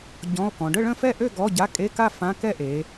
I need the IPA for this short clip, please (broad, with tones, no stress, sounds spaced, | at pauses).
ɟ ɔ̃˧˥˧ o̯ k ɔ̃˩˧ ɖ ə˥˧ ɭ ə̃˥˧ f ɛ˥˧ ʔ ø˥˧ ɡ ɔ˧˥˧ ɟ a˧˥˧ kʼ e˧˥˧ k a˥˧ f ã˧˥˧ k ɛ˥˧ ʔ e˩˧